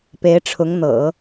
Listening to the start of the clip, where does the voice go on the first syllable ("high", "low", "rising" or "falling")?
rising